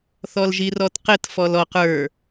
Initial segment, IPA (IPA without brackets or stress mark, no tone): θ